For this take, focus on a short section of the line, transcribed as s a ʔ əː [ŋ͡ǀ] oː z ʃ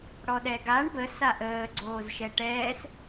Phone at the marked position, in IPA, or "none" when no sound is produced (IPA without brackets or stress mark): ɡ͡ǀ